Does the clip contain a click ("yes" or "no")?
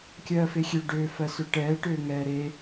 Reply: no